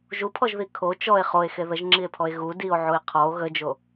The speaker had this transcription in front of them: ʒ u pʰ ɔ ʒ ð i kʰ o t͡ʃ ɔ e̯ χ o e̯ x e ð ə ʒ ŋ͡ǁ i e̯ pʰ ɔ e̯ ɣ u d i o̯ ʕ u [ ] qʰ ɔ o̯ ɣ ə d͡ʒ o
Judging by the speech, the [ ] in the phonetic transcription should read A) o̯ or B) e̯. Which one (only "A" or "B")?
B